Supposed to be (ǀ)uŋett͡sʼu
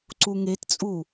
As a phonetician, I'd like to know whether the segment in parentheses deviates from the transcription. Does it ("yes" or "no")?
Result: no